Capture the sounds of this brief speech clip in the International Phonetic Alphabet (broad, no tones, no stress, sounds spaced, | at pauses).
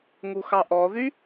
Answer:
ŋ u x ɑ ʔ ɔ ð y